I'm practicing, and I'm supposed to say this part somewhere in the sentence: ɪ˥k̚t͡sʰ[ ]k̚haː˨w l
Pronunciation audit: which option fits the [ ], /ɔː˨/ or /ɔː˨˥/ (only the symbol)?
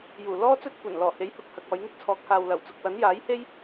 ɔː˨˥